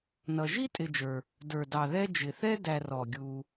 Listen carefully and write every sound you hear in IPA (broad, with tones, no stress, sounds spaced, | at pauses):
n ʌ˩ ʒ i˥ tʼ ɪ˨ d͡ʒ ə˞˩ | d ə˞˩ d ɑ˩ ð ɛ˦ d͡ʒ ɪ˩ θ ɛ˥ d æ˨ r ɔ˩ ɡʲ u˨